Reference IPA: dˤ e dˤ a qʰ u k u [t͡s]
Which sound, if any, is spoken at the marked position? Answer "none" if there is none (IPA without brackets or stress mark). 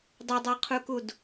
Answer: d